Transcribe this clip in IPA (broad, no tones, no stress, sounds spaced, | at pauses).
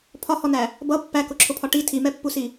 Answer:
pʰ ɒ h ɔ n æ | b ʌ pː æ k ʊ ǁʰ ʊ pʰ ɒ ʈ i tʰ i m ɛ pː u s i